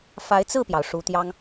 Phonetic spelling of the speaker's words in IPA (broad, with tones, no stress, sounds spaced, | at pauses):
f a˧˥ ɪ̯ t͡s ɹ̩˥˩ p j ɑ˩ ʊ̯ ʂ u˧˥ t̪ j ɑ˥ ŋ